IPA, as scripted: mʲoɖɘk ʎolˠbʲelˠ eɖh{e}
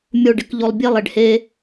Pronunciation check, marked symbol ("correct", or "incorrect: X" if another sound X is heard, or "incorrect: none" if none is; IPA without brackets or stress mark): correct